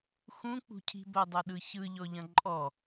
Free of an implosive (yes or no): no